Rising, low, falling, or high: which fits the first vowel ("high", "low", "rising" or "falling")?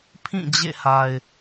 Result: falling